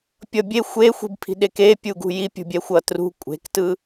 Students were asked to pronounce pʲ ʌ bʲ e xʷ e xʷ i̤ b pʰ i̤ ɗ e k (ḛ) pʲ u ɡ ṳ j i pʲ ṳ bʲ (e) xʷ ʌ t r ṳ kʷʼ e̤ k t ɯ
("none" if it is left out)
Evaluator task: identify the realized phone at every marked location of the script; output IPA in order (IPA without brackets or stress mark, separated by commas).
e, ɛ